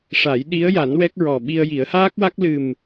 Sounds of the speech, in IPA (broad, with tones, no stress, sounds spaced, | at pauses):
ʂ a˨˩˦ j ɗ i˧˥ ə̯ j a˨˩˦ n w ɛ˦˥ k̚ ɹ ɔ˨˩ ɓ i˧ ə̯ j i˨˩˦ ə̯ h aː˦˥ k̚ w a˦˥ k̚ l ɨ˨˩ m